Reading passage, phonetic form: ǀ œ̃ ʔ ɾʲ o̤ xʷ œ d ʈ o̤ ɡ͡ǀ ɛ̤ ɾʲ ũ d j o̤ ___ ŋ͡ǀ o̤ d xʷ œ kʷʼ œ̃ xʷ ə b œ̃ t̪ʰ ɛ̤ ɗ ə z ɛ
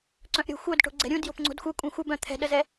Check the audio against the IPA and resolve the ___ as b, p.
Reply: p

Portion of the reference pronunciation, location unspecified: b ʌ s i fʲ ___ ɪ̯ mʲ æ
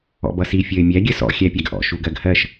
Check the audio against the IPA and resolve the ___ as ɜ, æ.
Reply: ɜ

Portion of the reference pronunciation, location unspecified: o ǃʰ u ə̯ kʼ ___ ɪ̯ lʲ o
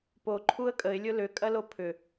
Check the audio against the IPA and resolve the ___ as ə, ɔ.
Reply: ə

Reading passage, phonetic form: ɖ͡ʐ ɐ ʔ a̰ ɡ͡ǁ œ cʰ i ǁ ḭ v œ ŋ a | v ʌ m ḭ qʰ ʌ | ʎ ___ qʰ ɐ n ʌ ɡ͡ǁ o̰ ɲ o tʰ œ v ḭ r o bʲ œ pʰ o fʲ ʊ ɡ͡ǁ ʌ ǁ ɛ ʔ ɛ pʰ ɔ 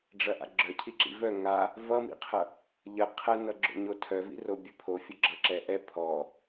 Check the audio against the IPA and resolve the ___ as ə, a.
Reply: ə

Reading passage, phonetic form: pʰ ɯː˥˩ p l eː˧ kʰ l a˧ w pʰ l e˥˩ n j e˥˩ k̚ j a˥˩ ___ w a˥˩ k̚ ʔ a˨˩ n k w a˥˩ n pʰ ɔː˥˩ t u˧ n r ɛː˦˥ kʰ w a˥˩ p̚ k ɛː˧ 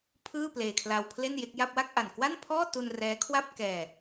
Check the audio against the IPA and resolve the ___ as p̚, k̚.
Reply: p̚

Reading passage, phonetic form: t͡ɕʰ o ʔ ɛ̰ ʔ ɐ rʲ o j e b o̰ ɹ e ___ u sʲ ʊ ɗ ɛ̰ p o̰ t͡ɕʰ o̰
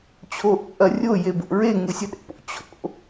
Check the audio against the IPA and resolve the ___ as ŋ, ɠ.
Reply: ŋ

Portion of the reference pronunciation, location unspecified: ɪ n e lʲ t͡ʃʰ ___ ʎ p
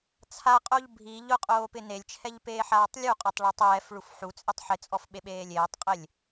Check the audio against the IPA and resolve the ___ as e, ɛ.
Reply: ɛ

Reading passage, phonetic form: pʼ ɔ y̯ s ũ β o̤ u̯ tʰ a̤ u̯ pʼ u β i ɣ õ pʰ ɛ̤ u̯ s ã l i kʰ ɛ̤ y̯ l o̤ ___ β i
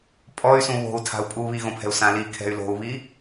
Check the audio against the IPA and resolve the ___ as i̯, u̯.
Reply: u̯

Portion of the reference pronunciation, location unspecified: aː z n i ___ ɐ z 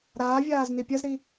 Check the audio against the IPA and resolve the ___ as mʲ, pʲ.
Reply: pʲ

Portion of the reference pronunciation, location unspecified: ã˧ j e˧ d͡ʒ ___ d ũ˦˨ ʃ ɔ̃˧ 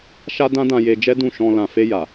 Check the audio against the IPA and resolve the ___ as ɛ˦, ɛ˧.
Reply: ɛ˦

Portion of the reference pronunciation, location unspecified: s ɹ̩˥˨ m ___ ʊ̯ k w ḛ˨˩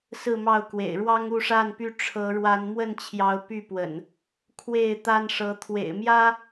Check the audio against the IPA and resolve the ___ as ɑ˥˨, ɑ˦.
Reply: ɑ˥˨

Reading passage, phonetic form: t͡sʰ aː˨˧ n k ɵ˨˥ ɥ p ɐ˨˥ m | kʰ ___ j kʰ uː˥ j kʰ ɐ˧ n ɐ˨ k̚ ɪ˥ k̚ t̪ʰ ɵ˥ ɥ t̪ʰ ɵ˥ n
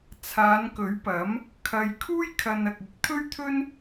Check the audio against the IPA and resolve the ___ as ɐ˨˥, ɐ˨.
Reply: ɐ˨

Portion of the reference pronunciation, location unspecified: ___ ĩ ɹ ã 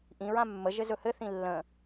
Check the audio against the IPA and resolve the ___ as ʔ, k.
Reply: ʔ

